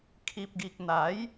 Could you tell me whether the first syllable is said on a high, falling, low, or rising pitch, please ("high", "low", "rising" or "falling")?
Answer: low